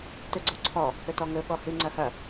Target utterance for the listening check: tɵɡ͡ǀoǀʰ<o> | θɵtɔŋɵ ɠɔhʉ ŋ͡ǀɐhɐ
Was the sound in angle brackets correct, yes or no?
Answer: no